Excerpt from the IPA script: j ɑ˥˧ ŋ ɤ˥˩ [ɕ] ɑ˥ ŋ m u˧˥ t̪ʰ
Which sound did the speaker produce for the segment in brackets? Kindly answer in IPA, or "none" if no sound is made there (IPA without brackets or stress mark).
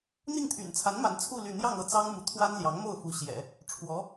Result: t͡s